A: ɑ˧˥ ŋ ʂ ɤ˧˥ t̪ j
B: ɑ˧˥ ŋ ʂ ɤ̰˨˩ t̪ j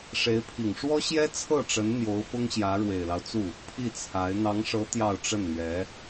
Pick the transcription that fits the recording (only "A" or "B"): A